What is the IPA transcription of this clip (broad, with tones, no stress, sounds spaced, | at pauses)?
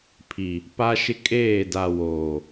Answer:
pʰ i˨ | p a˦ ʃ ɪ˦ kʼ eː˦˨ d a˨ w oː˨